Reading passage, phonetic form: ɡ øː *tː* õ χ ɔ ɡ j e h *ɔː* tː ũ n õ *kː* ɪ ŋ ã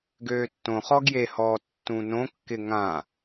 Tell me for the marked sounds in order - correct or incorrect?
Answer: correct, correct, correct

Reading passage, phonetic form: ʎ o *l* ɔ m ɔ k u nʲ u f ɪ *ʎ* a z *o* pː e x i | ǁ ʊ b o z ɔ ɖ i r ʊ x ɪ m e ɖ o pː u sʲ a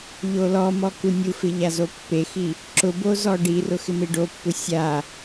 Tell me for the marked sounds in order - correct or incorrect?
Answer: correct, correct, correct

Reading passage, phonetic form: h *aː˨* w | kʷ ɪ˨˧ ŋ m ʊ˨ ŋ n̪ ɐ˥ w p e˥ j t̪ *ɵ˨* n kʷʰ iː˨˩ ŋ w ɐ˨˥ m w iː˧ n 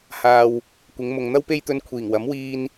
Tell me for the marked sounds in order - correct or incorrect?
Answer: correct, incorrect: ɵ˧

